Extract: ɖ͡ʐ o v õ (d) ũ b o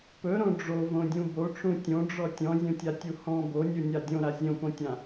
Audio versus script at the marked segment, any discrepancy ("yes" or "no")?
yes